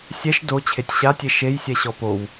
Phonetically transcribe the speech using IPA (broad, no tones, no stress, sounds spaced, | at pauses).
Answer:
sʲ ɛ ʃ d o t͡ɕʰ e tʲ ɕ a tʲ e ʃ e j sʲ ɛ ɕ ɔ p o w